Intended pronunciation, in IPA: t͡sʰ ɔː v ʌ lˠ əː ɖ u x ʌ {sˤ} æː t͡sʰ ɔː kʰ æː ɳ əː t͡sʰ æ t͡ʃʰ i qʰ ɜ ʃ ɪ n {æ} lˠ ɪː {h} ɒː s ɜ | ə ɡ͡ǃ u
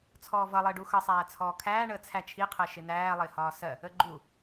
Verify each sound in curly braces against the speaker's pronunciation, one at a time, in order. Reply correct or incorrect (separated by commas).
correct, incorrect, correct